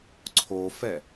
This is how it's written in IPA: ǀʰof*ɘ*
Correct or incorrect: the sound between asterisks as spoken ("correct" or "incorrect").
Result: incorrect